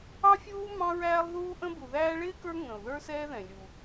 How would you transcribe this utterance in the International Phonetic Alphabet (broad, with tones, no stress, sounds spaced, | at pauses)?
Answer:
ɑ˦ fʲ uː˦ m ɑ̃˦ ɹ æː˦ lˠ ð uː˦ ʔ ə̃˦ b u˨ ð æː˦ ɭ ɪː˥ k ə˞˦ ŋ ə̃˩ ʊ̯ ð ə˞˦ s ɛː˦ ð ɛ̃˩ lʲ u˩